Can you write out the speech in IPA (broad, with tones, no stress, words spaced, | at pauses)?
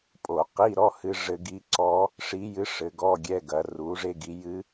pʼo˧˩˧qi˧˥˧ɾɔ˧˥˧ hɨ˧ʐɘ˧ ɡi˧ǀɔ˧˥ | ʂi˧˥jɨ˧˥ ʂɘ˩˧ɡɔ˧˥˧ɡʲɛ˧˥˧ɡɐ˩˧ ru˩˧ʐe˧ ɡi˩˧jɨ˧˥